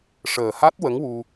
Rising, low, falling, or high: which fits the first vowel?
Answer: low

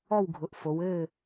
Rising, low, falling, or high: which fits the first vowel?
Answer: falling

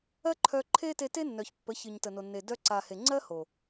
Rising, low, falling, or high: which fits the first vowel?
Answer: high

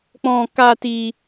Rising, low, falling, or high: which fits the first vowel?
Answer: high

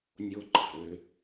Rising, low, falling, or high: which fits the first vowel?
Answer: high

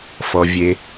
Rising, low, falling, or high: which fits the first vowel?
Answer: low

